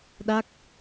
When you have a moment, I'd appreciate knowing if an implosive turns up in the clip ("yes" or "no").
yes